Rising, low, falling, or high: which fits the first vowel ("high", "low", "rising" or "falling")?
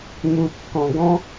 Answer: low